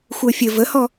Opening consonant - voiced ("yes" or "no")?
no